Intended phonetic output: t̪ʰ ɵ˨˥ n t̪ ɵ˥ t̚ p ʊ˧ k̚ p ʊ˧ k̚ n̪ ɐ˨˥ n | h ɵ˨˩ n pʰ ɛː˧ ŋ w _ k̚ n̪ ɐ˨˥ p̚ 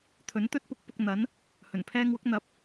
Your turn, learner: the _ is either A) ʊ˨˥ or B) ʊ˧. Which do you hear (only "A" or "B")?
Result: A